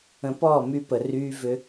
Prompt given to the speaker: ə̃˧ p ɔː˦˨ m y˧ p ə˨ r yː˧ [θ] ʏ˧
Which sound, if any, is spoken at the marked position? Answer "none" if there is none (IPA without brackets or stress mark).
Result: v